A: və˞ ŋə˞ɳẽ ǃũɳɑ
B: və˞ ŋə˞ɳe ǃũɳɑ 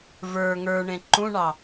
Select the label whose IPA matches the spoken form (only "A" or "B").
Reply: A